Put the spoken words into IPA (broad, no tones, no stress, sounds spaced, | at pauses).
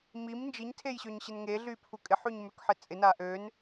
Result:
m i m n d͡ʒ i ɲ tʰ e j ɕ ø ɲ ɕ ɪ n ŋ e ɮ y pʰ u kʼ ɪ ħ y ɲ m ø k ħ ɪ t͡sʼ ɪ n a ʔ ø n